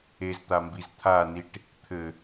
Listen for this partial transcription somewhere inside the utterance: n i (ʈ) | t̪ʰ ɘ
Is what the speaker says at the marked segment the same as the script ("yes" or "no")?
yes